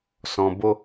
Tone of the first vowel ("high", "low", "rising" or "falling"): low